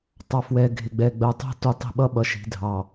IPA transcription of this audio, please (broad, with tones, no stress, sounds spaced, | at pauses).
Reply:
tˤ ɑ˨ f w ɛ˨ ɡʱ ɪ˨ ɡ͡b ɛ˨ ɡ͡b ɜ˨ tˤ ɛ̤˦ t u˨ tˤ i̤˨ ɓ ʌ˦ ɓ ʌ˨ ʃ i̤˨ dʱ ɑ˨